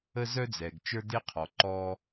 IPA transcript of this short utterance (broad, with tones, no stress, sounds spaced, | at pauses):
ə˧ z œ˧ d͡z ɛ˨ ɡ t͡ʃ ə˞˦ d e˦ qʰ ɔ˨ ǃ ɔ˧